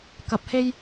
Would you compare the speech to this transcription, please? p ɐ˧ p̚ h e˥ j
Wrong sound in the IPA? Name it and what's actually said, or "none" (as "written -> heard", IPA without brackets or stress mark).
p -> k